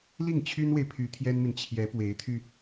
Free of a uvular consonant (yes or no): yes